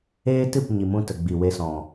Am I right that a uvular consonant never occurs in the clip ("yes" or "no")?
yes